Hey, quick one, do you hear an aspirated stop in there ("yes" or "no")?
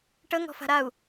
no